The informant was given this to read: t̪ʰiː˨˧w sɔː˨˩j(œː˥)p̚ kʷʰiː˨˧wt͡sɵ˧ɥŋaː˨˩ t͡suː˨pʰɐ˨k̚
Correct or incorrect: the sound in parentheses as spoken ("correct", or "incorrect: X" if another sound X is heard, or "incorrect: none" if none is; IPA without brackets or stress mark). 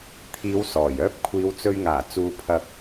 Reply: correct